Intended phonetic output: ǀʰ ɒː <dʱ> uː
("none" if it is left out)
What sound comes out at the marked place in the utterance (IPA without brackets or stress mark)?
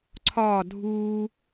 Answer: dʱ